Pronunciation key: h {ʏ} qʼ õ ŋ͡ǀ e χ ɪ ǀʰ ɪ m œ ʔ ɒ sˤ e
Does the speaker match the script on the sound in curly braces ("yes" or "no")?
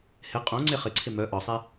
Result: no